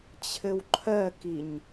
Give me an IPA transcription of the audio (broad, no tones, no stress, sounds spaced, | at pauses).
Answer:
t͡ɕʰ ɘ w ǃʰ ɜ k i ɲ